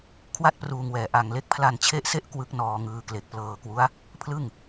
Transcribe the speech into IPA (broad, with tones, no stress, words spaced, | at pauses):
kʰwa˥˩t̚pruː˧ŋwɛː˨˩ ʔa˧ŋle˥˩k̚ pʰla˧nt͡ɕʰe˦˥ʔse˦˥ʔ kwɯ˦˥k̚nɔː˧ŋɯː˧ kle˨˩k̚plɤː˧kwu˦˥a̯ | pʰlɯ˥˩ŋ